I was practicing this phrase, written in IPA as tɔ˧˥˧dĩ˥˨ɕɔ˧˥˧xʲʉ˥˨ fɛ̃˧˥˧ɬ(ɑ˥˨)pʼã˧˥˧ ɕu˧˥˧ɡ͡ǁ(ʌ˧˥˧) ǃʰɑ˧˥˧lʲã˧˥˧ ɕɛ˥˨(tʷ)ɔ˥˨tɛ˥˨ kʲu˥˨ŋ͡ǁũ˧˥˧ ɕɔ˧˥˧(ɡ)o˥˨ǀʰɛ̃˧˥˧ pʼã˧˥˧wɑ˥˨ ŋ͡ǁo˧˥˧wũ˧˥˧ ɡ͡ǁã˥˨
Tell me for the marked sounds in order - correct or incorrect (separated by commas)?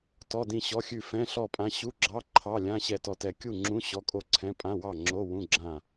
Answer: incorrect, incorrect, incorrect, incorrect